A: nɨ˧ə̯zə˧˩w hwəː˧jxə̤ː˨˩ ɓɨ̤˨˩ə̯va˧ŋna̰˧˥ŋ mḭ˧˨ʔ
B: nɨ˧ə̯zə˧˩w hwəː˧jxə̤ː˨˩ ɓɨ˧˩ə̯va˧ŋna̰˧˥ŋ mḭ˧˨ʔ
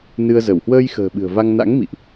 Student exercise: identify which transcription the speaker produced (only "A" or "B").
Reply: A